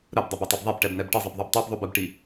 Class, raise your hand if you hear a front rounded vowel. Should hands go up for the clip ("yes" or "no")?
no